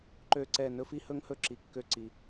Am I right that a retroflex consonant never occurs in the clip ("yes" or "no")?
yes